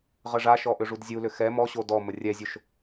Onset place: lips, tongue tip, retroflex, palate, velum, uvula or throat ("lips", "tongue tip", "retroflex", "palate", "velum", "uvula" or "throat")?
uvula